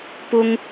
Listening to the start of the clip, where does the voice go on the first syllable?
high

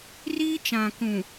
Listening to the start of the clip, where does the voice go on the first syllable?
high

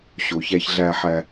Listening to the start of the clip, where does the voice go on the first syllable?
low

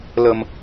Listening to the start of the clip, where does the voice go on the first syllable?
low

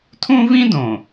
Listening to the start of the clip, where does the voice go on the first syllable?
high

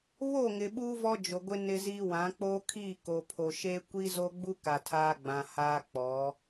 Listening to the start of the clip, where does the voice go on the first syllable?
falling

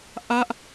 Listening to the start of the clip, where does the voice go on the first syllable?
falling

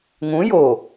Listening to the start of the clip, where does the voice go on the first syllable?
rising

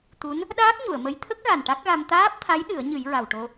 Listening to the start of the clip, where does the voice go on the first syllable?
rising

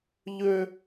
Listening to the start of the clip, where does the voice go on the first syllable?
high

